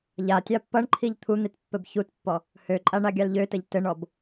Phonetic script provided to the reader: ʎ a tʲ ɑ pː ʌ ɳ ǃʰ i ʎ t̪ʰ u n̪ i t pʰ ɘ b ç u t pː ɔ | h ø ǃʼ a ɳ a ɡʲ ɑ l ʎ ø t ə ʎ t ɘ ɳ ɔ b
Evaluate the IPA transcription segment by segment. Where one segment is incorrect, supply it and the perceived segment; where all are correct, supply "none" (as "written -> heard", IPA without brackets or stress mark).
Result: pʰ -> pː